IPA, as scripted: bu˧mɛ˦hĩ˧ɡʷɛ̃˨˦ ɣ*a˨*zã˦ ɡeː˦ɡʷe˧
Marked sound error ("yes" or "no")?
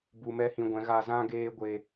yes